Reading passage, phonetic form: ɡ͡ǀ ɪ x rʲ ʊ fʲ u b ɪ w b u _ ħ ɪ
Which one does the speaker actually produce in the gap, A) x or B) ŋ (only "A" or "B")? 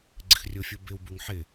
B